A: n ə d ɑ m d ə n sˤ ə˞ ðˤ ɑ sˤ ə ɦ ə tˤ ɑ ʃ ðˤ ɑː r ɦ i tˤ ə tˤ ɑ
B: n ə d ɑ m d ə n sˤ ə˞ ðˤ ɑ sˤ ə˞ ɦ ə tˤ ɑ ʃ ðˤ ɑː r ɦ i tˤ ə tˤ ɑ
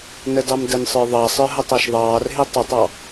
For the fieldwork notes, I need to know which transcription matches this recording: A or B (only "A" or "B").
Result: B